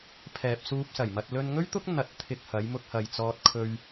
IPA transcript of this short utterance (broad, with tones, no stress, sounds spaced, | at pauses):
pʰ ɛː˨ p̚ s uː˧ p̚ s ɐ˨˩ j m ɐ˧ t̚ l ɵ˧ n ŋ ɵ˥ ɥ t̪ ʊ˥ k̚ n̪ ɐ˧ t̚ t̪ʰ ɪ˧ k̚ h ɐ˨˧ j m ʊ˧ k̚ h ɐ˨ j t͡s ɔː˧ t̚ kʰ ɵ˧ ɥ